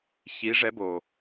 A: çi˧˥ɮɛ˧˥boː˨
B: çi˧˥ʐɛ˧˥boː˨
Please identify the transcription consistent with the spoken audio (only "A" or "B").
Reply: B